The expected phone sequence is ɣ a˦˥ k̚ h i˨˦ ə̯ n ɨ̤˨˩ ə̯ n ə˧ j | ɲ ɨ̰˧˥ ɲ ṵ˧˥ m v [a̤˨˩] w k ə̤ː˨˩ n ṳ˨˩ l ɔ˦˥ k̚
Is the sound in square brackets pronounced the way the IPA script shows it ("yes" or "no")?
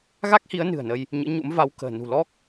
no